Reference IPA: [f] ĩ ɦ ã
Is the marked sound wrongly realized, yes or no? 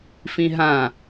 no